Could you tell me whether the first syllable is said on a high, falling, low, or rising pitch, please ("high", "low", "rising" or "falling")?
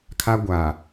high